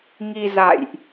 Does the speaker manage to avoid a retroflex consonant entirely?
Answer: yes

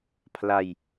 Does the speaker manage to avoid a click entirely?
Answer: yes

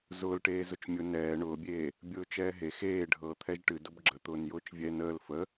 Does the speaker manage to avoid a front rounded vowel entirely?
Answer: yes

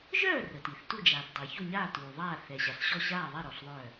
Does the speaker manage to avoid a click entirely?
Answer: yes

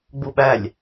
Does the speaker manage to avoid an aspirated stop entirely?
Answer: yes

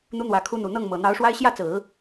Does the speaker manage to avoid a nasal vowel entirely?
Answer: yes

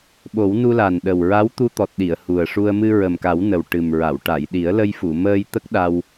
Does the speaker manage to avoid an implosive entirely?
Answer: no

